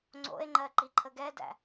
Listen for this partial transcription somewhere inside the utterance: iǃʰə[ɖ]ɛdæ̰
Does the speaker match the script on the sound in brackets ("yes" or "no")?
no